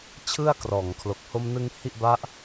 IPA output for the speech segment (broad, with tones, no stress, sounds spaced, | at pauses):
t͡ɕʰ ɯ˥˩ a̯ k r ɔː˨˩ ŋ kʰ l o˨˩ k̚ h o˧ m n ɯ˧ ŋ h i˥˩ ʔ b a˦˥ ʔ